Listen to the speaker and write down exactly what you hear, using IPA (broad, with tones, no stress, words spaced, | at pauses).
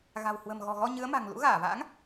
ɣa̤˨˩w hwə̤˨˩mɣɔ̤˨˩ɣɔ˧ ɲɨ˨˦ə̯ma̤˨˩ŋ lṵ˧˥ɣaː˧˩va̰ː˧˥ŋ